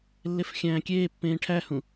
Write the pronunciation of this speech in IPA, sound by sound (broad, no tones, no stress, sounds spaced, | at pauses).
lː e f xʲ æ̃ː kʲ eː pː ẽː ʈʰ æ h ũ